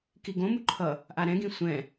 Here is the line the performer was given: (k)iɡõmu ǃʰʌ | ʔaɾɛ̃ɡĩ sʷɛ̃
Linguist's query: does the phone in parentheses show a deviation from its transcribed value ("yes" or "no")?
no